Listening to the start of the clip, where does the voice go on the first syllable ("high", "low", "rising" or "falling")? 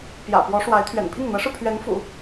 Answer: low